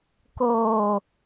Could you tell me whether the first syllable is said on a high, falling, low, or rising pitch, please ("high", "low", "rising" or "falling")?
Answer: low